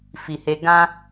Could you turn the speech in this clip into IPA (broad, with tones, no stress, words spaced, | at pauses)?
fi˨he˧ ɡã˦